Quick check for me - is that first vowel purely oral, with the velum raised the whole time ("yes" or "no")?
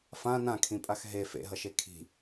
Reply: no